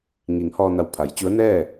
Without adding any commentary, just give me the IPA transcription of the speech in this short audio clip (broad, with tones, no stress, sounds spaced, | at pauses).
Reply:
ŋ i˩˧ ŋ h ɔː˧ n a˧˩ w pʰ a˩˧ j t͡ɕ u˧˥ ə̯ n ɛː˥˨